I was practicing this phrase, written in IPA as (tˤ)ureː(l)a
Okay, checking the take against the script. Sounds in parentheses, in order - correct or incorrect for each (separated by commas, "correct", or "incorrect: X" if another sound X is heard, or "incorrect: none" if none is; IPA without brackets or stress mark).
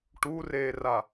incorrect: ʈ, incorrect: r